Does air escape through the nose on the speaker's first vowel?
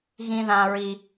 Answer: yes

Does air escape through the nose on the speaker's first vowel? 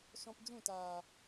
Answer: yes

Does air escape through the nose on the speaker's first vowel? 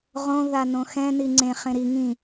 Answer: yes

